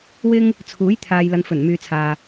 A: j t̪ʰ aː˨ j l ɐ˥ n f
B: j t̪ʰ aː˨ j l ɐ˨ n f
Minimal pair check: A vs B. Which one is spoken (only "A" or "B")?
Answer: B